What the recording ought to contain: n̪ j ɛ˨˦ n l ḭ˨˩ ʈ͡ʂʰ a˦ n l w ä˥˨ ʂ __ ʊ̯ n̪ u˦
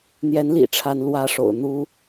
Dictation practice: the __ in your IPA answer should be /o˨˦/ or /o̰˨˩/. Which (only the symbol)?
o̰˨˩